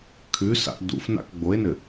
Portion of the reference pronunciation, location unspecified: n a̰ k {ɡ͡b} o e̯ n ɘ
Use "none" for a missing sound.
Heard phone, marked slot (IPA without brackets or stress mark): ɡ͡b